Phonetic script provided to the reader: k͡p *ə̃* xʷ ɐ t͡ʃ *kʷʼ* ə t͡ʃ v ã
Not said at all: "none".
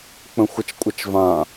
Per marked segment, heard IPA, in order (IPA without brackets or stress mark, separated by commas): ə̃, kʷʼ